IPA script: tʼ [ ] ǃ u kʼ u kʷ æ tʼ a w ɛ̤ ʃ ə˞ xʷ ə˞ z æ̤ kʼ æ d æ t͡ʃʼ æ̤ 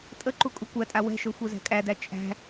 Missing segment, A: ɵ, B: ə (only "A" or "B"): B